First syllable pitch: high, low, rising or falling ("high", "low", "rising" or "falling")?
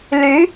rising